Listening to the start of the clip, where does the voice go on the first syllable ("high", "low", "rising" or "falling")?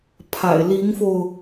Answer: low